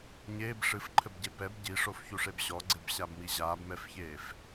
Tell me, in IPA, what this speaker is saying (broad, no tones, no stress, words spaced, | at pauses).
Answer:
ɲeːb ʂɨfǃʰɘbɟe pɛb ɟiʂofçuʂeb ɕɔɡ͡ǀebɕabmi ʑaːbmɛfçeːf